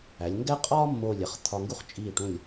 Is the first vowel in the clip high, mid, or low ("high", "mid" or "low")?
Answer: low